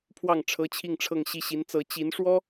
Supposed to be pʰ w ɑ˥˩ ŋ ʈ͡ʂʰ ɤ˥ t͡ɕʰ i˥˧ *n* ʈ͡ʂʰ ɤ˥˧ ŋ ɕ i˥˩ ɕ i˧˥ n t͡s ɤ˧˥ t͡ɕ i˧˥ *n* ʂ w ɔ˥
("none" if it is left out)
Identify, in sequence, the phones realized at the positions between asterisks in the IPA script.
ŋ, n

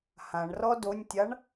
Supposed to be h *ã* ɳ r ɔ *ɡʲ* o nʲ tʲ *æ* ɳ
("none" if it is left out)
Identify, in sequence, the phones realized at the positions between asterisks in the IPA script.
ã, d, a

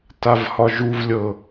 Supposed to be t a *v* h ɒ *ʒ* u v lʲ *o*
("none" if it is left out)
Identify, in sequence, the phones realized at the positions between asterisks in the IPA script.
v, ʒ, ɤ

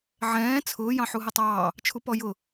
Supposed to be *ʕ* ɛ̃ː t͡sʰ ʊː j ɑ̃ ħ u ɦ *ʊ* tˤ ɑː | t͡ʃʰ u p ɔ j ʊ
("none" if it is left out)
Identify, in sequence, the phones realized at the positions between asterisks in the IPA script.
ʕ, ə

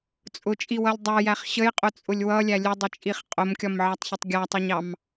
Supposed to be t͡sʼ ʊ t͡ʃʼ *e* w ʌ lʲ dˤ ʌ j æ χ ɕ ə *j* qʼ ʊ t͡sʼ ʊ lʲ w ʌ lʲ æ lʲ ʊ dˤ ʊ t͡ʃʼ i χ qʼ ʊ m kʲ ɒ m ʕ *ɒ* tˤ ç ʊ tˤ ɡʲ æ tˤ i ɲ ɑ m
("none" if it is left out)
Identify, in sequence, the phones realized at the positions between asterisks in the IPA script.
i, j, ɑ

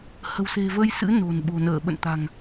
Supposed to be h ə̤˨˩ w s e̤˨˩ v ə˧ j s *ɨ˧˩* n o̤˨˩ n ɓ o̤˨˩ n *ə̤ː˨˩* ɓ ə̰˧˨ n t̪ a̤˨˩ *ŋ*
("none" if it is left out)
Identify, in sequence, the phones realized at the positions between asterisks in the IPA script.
ɨ̰˧˥, əː˧˩, ŋ

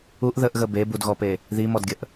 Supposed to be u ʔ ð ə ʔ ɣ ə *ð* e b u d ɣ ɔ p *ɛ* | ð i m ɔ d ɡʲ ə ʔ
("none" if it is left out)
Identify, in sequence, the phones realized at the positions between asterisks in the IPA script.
b, e

